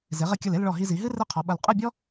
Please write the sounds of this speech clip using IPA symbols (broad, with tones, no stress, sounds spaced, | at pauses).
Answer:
z e˩˧ ʁ ɘ˧ kʲ ɐ˧˩ l e˥˧ l ɭ ɔ˧˩ ɦ i˧ z i˩˧ ɦ ɨ˥ r ɘ˥˧ qʰ ɔ˩˧ ɓ ɐ˧˩ l qʼ ɘ˥˧ bʲ ɔ˥